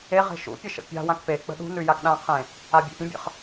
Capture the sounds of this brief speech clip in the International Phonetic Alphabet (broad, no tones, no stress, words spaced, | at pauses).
e ʁe̤ʃṵpʲə ʃə̰pʲa̤wãk pek͡pə̤ ɗṳnʉ jakɗãqʰẽ | abʲḛpʲə̃bʲə̰χ